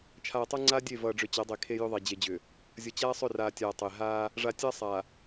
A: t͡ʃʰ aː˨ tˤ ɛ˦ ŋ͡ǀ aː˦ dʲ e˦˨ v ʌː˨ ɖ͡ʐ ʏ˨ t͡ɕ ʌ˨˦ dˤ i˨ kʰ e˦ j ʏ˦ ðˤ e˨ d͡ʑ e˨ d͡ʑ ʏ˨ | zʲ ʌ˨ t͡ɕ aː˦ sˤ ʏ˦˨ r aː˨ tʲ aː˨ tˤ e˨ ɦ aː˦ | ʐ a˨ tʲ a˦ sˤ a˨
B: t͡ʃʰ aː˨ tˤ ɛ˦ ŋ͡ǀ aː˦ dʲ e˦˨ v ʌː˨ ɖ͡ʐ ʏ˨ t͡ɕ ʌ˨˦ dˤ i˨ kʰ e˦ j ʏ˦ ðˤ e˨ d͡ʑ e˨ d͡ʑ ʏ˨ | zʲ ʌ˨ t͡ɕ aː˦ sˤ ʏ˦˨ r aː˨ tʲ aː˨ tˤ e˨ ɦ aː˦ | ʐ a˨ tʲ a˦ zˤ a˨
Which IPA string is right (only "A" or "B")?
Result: A